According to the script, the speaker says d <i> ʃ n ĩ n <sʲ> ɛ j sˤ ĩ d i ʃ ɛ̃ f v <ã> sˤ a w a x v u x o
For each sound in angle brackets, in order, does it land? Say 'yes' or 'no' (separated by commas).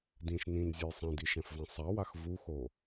no, no, yes